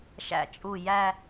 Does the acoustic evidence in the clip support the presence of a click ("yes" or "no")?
no